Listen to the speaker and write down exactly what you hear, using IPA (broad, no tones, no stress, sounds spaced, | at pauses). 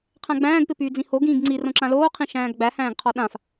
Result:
qʰ æ̃ ɡ͡b æ̃ː ɡ p ɪ p yː d͡z ĩ h o ɡ ĩː ɡ ŋ͡ǀ i r õ ǁ ã l oː qʰ ĩ ʃ æ̃ː ɡ ɡ͡b æ h æ̃ː ɡ qʰ ɔ ɗ ã f